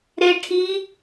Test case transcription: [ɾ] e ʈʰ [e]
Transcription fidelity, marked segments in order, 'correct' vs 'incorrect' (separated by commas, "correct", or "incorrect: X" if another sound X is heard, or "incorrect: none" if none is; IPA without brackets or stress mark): correct, incorrect: i